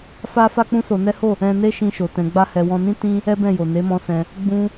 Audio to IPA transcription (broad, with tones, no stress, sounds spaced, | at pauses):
f a˦ f a˦ k͡p ũ˦ s o˧ n ɛ˦ h o˦˨ | ɛ̃˦ n e˦ ʃ ĩ˧ ʃ o˨ t ɛ̃˧ ɡ͡b a˦ h ɛ˧ w ɔ̃˧ n ĩ˦ t ĩ˦ | ɛ˦ b ɛ̃˦˨ j o˨ n e˨˦ m ɔ̃˧ s ɛ̃˧ | ɡ͡b ũ˧